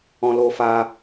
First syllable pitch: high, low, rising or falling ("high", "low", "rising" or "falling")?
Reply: high